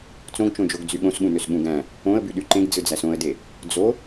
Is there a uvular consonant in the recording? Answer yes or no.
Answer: no